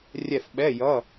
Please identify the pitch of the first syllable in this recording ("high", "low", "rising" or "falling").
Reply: falling